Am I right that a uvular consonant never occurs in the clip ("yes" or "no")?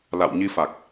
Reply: yes